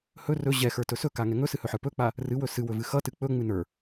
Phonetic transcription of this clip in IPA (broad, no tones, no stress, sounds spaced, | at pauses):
h ɵ r ɵ ʑ ɛ x ə˞ t ɵ s ɵ k a ŋ ɛ ŋ ɵ s ɨ h ɵ ħ ə˞ p ɵ k͡p a | r ɨ w ɵ s ɨ w ɵ v ɨ x ʌ t ɨ k͡p ɵ ŋ͡m ɨ n ə˞